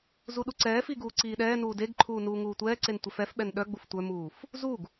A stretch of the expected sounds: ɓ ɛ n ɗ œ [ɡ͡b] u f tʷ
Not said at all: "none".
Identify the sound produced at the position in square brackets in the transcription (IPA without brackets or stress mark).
ɡ͡b